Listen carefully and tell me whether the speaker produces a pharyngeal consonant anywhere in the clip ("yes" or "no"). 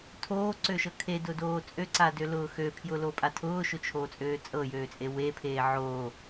yes